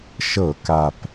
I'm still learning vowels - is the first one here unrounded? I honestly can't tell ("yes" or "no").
yes